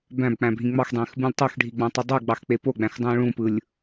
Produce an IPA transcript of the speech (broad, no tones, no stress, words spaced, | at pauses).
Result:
bæ̃bk͡pæ̃bʱĩ ŋ͡mɑxdˤẽːxbũlʲ tˤoxɖʱiɡ͡bɑ̃tˤɯ dˤuɡ͡bɑxk͡pe poɡ͡bæ̃xdˤũː ɭũpɯlʲ